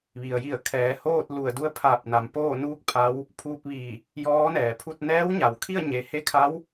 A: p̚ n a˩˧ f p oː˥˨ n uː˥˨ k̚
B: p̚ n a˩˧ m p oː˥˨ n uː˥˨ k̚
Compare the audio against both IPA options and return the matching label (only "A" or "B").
B